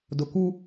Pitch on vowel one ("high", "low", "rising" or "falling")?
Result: low